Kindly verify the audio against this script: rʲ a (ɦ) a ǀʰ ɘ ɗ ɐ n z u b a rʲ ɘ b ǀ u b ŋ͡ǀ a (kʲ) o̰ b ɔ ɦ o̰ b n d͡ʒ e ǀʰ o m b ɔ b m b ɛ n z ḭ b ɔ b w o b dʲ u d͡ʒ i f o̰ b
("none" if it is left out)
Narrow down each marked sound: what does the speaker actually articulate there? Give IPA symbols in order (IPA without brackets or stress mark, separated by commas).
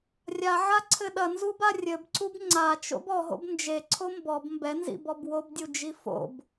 ʕ, t͡ʃ